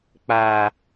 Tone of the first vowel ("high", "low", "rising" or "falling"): low